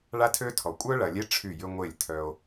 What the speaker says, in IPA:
ɭ a˦ tʰ ø˦ tʰ ɔ˨ kʷʼ œ˦ ɭ ɐ˨ lʲ e˦ ʈ͡ʂʰ y˦˨ j ʏ˦ ŋʷ e˦˨ lʲ tʰ œ˦ o̯

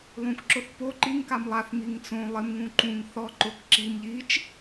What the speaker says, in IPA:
lˠ ũ k ǁ ʊ θ p o ǃ i ŋ k a m lˠ a θ m i ŋ t͡s õ lˠ ɪ m ŋ ũ ǃ ũ ŋ θ ɔ ǃ ʊ k ǁ i m ʎ i t͡ʃ

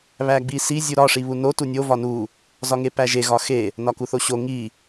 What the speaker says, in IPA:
β æ ɡ͡b i s i zʲ u ɾ ɒ ʂ i β u n o t u nʲ o v ɒ n u | z ɒ ŋ e p æ ʒ e ɣ ɒ x e | n ɒ k u θ o ɕ o ŋ i

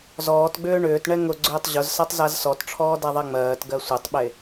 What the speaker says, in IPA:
z ɔː t ɡ͡b ʏː ɳ ʏː t ɳ ɛ ŋ ʊ ɡ͡ǀ ʏː tˤ ʑ ʊ z s a tˤ z a z s ɔ t ʈ͡ʂʰ ɔː d a ðˤ ɛ ŋ͡m ɜː t ɡ ɜ sʷ ɛ tˤ ɓ e

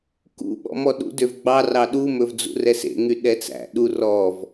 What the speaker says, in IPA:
k ṵ ɓ ɔ̰ m ɔ ɗ ṵ d ø v ɡ͡b ɑ r ɑ ɗ u m ɵ v d͡z ṵ r ɛ s ḛ ŋ y ɗ ɛ t͡s æ̰ ɗ u r ɔ v

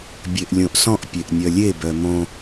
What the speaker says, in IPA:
bʲ e ʔ lʲ õ ʔ s ɔ̃ ʔ pʲ e ʔ nʲ œ lʲ e b œ m õ

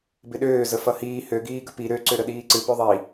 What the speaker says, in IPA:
b ɪ ɗ øː z ə f ʌ h iː h ø ɡ iː ɡ ə p i ɾ ø ǀ ø ɾ ə ɗ iː ǀ ɨ p ø ðˤ i

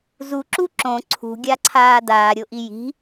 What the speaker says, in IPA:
z u ǁ u ǁ õ ǀʰ ṳ ɡʲ a ǀʰ aː d aː ɾʲ o ʔ i j i̤

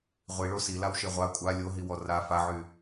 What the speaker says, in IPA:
ʁʷ i ɭ o s i l a w ʃ e ʁʷ a kʷʼ a lʲ o ɦ i w ɔ r a f a ʕ y

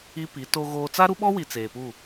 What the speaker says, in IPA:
i˦ p i˨˦ t o˦ ɣ oː˦ t͡s a˦ ɾ u˦ ɓ ɔ˦ w i˨ t͡s eː˨ p u˦˨

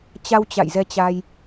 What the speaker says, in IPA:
t͡ɕ a˧ w t͡ɕ a̰˧˨ j z ɛ˧ t͡ɕ a˧ j

